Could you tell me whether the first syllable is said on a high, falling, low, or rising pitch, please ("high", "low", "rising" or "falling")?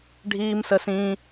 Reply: high